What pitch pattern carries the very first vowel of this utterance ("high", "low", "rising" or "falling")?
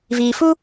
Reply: low